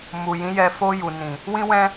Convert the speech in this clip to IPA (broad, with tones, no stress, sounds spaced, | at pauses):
m u˨ j ĩ˨˦ j ɛ˧ f o˧ j u˨ n ĩ˨ | w ĩ˧ w ɛ̃˧